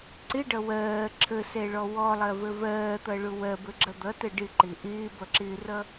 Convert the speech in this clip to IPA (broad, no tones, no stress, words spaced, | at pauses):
ǀɪɖʌ wɜː ǁʰəsɛɭɔ wɔlˠɜvə vɜːt̪ʌɭʊ wɜbəɡ͡ǁʌ d̪ʌtə ɖɪǃɪ ʔɪːbʌǁɪːrʌ